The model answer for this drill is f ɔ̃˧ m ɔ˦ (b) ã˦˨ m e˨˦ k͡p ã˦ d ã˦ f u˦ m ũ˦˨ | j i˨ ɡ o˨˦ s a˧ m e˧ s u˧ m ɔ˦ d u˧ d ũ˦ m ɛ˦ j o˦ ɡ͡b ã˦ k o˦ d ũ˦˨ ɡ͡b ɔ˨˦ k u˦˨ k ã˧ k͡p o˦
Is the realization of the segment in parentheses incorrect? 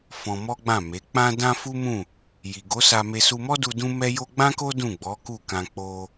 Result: yes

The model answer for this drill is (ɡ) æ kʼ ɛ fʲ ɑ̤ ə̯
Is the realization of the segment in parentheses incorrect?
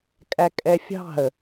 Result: yes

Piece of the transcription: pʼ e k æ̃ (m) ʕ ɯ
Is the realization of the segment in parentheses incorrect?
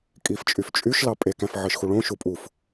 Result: yes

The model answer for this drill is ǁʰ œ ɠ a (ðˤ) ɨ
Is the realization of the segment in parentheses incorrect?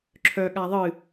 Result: no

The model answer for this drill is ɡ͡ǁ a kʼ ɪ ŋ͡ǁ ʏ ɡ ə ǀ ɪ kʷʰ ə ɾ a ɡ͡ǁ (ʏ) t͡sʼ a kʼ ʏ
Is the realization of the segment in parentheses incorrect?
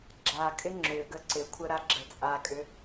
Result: yes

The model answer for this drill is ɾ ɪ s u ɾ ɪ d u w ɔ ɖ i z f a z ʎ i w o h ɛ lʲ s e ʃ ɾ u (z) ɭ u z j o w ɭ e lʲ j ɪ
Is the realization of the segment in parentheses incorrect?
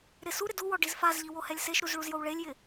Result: no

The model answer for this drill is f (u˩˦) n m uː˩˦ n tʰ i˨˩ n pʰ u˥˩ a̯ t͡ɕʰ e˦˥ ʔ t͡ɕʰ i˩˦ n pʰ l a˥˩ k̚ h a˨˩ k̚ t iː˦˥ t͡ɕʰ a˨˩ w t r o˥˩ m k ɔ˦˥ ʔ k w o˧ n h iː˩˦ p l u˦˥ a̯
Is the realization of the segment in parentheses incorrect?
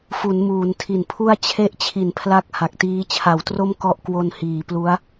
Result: no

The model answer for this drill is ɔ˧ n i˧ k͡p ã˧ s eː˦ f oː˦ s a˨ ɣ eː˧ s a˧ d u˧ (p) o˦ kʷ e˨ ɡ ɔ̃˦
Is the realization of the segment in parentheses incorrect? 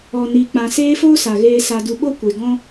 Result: yes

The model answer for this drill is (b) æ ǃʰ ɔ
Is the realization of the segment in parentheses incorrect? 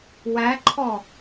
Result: yes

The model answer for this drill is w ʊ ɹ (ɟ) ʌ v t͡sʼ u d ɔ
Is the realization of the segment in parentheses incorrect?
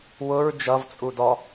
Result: yes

